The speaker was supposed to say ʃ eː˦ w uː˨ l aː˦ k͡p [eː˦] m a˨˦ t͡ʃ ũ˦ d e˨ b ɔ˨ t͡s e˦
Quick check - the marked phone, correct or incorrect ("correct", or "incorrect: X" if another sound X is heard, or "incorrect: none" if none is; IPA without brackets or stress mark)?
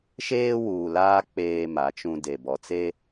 correct